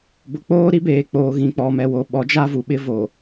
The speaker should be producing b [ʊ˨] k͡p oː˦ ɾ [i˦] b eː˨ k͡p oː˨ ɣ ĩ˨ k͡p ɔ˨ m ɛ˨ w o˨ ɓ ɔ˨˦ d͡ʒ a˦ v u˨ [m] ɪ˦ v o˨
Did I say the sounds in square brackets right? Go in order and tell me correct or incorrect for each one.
correct, correct, incorrect

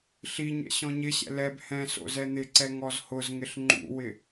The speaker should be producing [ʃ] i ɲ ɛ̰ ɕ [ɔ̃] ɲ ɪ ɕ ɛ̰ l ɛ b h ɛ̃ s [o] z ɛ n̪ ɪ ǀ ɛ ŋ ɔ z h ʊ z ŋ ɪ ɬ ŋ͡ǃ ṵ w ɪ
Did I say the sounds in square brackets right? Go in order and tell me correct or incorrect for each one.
incorrect, correct, incorrect

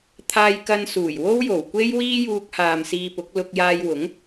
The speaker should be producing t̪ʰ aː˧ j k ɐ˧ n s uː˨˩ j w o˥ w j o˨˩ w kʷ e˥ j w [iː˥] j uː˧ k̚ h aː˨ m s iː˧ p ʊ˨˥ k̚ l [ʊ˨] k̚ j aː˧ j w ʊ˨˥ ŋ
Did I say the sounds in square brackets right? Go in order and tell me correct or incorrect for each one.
correct, incorrect

